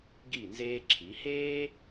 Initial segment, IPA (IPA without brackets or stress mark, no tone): ɡ